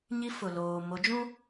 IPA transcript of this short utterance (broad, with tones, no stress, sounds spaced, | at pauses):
ɲ i˦ f ʊ˨ l oː˨ m o˨˦ d͡ʒ ũ˦